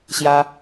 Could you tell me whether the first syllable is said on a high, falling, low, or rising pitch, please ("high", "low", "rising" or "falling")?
high